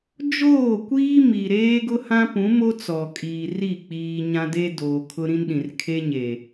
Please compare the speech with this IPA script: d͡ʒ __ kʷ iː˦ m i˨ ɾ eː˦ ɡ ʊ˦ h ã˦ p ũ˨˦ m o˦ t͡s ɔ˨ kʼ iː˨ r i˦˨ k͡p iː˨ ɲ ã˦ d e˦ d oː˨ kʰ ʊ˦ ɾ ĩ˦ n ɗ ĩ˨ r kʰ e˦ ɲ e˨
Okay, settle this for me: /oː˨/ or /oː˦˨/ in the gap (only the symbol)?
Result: oː˦˨